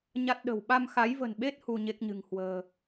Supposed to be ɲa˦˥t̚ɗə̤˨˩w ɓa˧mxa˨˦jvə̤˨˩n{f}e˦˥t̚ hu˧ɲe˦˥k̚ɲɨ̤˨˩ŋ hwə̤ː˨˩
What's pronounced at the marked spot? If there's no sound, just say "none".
ɓ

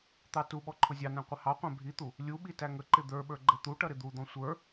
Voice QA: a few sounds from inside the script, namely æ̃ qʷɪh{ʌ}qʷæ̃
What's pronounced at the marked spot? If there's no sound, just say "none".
ɑ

